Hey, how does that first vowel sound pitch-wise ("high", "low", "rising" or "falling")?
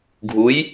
rising